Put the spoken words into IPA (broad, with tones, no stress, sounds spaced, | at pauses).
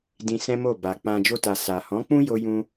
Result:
d ĩ˧ s ɛ̃˦ m o˦˨ b a˨ k͡p ã˧ d͡ʒ o˧ t a˨ s a˨ h ɔ̃˨˦ k͡p ũ˦ j o˧ j ũ˦